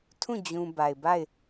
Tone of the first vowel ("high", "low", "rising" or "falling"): falling